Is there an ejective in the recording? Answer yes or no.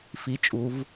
yes